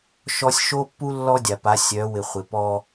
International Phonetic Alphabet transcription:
ʃɔ˦sʲ ʃo˦pːu˦ lːɔ˦dʲa˨pa˨˦ sʲœ˨˦ wɪ˨ χʷɪ˨pɔ˦

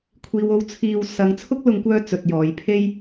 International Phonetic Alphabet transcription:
kʷʰiː˨wo˧w t͡sʰiː˧w sɐ˨˧ŋt͡sʰʊ˥k̚lʊ˨˧ŋkʷœː˧ t͡sɵ˨t̚jɔː˨˧j pʰe˥j

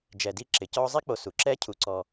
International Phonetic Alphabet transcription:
d͡ʒɛ˨di˦ ǁɪ˩cɔ˦zˤi˥k͡po˨ su˩ǁɛ˦cʰu˨ǀɔ˨

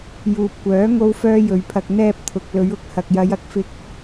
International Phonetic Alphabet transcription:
juː˨p̚kʷœː˨˥ ŋo˥wfœː˥jɵ˨ɥpʰɐ˧k̚ n̪ɛː˥p̚t̪ʰʊ˨k̚ lɵ˨˧ɥʊ˧k̚hɐ˨k̚jɐ˨˧j ɐ˨˥k̚fɪ˧k̚

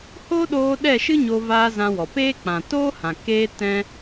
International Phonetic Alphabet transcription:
ho˦ɗoː˧ ɗɛ˦˨ʃɨ˦ ɲoː˧vaː˧ zã˧wɔ˨ peː˦ k͡pã˨toː˦hã˨ keː˧ tɛ̃˧

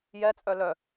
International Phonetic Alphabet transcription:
jɛt͡sʼœ lœ

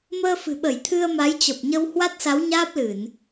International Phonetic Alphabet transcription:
məː˧fɨ̤˨˩ɓə˧˩j t̪ʰɨ˧ə̯ma˨˦jt͡ɕə˨˩p̚ɲə˧w hwa˦˥t̚sa˨˦wɲaː˦˥p̚ lɨ˧˩˨n

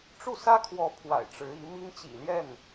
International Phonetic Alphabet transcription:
ʈ͡ʂu˥˩sä˥kʰwɔ˧˥ pʰwa̰˨˩ɪ̯ʈ͡ʂɻ̩˧˥i˧˥mi˥ŋ t͡ɕḭ˨˩ljɛ˥˩n

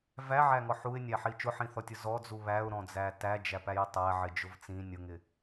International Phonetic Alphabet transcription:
væʕæŋɔ ħuɪ̯nʲæħi t͡ʃʊħĩθɔtʲʊ zɔd͡zu βæʊ̯ɾɔ̃d͡zæ tæd͡ʒæpæjɪ tˤæʕɪd͡ʒʊv t͡sĩ nʲʊŋɪ

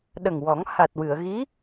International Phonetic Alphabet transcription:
ɗə˨˩ŋwɔ˨˩˦ŋ ha˨˩t̚wɨ˨˩˨ə̯ ɣi˧˥

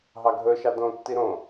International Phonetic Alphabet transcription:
ɦɑɡʱɵʃɑ dõtːi ɾõ

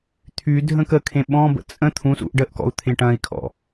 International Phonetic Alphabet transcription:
t̪ʰydʱə̃ kəkʰẽ ɓɔ̃bə̰ t͡sʼə̃ t̪ʰũsṵʔ ɖəʔkɔ̰u̯ t̪ʰẽʈɐ̃i̯kʰɔ̰

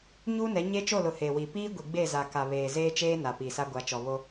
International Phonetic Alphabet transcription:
ɲuː˦nɛ˨˦ ɲe˦t͡ʃo˦˨lʊ˨ he˨ wi˨piː˦ ɡʷi˨ɡ͡be˦˨za˨ ka˨βeː˨zeː˦ t͡ʃeː˦ na˨piː˨sa˦ ɡʷa˨˦t͡ʃɔ˨βo˦

